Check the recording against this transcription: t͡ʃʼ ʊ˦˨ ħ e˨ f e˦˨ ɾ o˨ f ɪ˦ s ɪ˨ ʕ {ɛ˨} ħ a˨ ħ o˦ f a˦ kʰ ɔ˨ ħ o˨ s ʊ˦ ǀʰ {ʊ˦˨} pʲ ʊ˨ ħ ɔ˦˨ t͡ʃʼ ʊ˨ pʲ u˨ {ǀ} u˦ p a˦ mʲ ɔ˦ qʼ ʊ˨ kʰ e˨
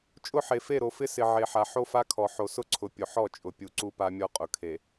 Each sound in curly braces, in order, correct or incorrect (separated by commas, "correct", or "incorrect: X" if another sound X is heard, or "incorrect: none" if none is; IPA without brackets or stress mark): incorrect: e˨, incorrect: ʊ˨, correct